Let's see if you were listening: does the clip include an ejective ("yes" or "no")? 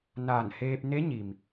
no